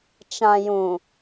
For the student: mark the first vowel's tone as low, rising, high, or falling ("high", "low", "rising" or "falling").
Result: low